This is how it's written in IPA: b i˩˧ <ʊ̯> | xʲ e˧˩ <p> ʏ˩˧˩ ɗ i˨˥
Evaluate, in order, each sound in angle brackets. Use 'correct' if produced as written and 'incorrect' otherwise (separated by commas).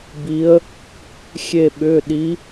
incorrect, incorrect